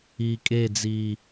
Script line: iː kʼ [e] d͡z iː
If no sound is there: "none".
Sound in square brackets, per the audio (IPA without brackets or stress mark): e